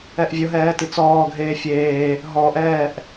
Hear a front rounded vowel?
no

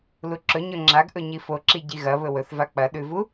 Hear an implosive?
yes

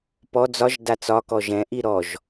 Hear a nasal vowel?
yes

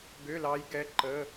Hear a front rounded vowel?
yes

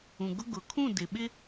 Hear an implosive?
yes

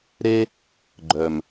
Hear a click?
yes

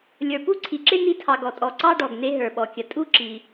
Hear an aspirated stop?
yes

